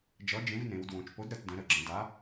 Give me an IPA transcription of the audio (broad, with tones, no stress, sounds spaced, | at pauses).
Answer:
d͡ʒ ʌ˨˥ d͡ʒ ẽ˨˥ v n ẽ˩˧ w d w õ˩˧ t͡ʃ p o˨˥ d ɾ ə˩˧ t d ə̃˩˧ ɾ ə˩˧ ɡ͡ǁ ə̃˩˧ d a˨˥